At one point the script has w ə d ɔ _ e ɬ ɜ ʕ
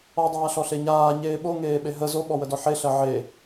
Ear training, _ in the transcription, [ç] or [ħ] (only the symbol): ħ